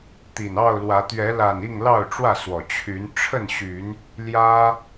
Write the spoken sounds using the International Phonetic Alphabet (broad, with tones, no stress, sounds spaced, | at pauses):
t̪ i˨˩ n ɑ˥˨ ʊ̯ l w ä˨˦ t̪ ɥ ɛ˨˦ l a˨˩ n i˥˨ ŋ l ɑ˥˨ ʊ̯ ʈ͡ʂ w ä˥˨ s w ɔ˨˩ t͡ɕʰ y˨˦ n ʈ͡ʂʰ ə˥˨ n ɕ y˨˦ n | l j ä˦